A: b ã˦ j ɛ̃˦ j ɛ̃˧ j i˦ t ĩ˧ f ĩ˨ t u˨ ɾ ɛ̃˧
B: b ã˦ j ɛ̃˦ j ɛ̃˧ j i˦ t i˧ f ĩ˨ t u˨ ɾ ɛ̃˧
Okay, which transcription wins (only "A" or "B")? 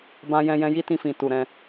A